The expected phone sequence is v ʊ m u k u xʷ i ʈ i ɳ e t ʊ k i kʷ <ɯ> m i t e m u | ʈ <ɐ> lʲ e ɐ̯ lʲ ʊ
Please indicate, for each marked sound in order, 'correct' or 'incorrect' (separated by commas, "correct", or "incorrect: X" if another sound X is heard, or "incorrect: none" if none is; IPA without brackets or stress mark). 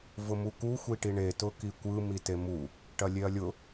correct, correct